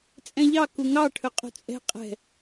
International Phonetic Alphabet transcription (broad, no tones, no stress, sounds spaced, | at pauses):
t͡sʼ ɛ̃ ʎ ɑ k u ŋ ɑ ʈʰ ɵ qʼ ṳ t͡sʼ ɛ̤ qʼ ɛ̤